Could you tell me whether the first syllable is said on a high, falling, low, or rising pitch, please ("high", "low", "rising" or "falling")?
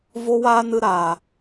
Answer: high